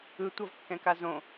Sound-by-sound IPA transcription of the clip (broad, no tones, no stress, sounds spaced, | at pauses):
ɯ tʷ ʌ v kː ɛ̃ k a z õ